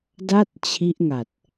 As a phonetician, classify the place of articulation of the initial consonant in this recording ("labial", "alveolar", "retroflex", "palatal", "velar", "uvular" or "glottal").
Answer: alveolar